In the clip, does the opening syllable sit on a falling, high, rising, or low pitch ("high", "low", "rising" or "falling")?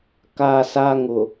high